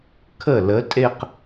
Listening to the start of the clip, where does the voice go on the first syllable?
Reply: falling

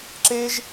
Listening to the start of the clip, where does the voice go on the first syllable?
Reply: high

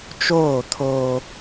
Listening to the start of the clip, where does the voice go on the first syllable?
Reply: falling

